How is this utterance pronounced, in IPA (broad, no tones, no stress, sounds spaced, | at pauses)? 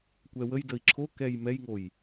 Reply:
kʷ ɛ w ə j d ə i̯ ǁʰ o k ɛ j m ɛ j ŋ o j